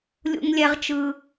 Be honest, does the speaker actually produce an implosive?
no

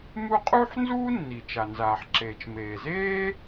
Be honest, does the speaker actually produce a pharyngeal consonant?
yes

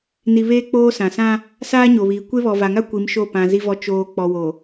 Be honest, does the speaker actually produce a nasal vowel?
yes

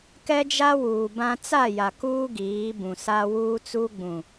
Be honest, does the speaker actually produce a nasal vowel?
yes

